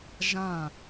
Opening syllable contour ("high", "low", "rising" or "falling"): falling